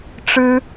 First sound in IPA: ʈ͡ʂ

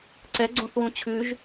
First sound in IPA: ǀ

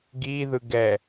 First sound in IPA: ɡ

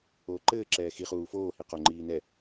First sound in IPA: oː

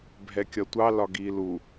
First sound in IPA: bʱ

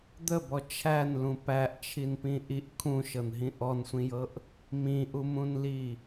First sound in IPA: d̪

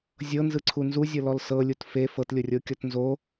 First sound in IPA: zʲ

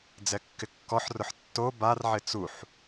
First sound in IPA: d͡z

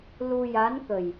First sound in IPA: l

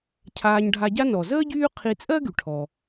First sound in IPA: cʰ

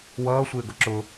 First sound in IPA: w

